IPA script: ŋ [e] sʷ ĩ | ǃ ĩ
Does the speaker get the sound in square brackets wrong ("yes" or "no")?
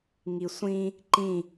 yes